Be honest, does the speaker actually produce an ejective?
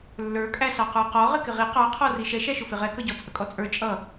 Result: yes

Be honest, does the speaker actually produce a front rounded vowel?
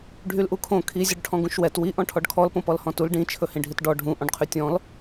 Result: yes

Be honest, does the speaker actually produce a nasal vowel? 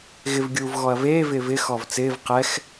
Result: no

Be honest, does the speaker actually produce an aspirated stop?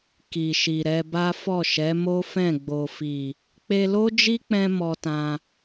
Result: no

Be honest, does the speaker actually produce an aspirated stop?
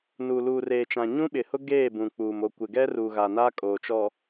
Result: no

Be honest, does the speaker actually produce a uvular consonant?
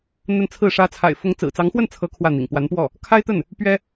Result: no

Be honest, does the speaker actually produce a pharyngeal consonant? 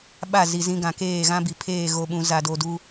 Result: no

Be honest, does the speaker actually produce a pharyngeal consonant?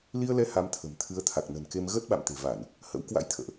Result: no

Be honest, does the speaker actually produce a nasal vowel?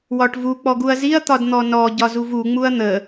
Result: no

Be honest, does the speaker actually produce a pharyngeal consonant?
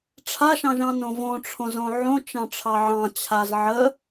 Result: yes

